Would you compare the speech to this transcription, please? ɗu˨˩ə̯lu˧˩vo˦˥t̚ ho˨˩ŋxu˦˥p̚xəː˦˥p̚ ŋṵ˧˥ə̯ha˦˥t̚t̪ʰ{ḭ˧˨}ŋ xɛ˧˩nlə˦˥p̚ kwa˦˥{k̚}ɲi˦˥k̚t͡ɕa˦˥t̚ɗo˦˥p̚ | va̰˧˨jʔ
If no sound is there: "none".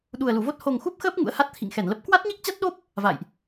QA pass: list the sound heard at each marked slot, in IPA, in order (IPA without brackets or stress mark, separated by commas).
ḭ˧˨, t̚